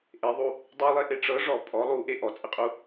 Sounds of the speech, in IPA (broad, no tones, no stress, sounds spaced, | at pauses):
ʔ e ðˤ u | dˤ y lˠ e ʔ e ʈ͡ʂ ɤ ʐ ɔ pʼ ɔ lˠ u ʔ e ʔ ɔ t͡sʼ ɘ qʼ u